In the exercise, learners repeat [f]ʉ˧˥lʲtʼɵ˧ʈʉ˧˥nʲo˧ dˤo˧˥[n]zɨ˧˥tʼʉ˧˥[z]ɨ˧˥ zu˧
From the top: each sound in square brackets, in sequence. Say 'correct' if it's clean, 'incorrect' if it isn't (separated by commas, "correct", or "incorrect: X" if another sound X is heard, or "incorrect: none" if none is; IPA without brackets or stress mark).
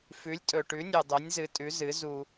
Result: correct, incorrect: nʲ, correct